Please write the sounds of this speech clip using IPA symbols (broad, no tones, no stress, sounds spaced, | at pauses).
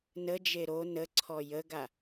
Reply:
n ə d͡ʒ e ɾ o n ə ǀʰ ɔ j ə ɡ a